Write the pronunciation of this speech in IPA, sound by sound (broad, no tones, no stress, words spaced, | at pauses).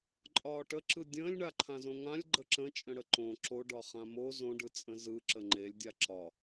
ǃʼɒːʈəǁɯ dʲə̃ːlʲɳaǃʰãzõ ŋãlʲ ɡ͡ǃəǁə̃ t͡ʃʼə̃ɽəǃõ ǁoɖɒ χãmo zõɖɯt͡sʼə̃ zɯ ǁəŋ͡ǃelʲdʲa ǁɒ